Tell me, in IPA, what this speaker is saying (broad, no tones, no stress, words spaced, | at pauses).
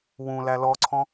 wũ lælɔǀʰɔ̃